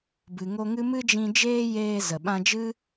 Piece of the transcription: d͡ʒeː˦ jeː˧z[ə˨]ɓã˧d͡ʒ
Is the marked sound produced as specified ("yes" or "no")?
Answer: yes